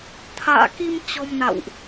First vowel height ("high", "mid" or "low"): low